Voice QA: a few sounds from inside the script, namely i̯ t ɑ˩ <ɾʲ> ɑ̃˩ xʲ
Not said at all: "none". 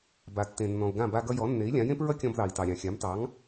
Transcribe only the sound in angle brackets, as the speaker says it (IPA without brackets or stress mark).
ɾʲ